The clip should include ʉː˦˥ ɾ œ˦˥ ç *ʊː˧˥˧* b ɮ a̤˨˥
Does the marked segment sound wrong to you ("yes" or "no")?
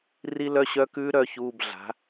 yes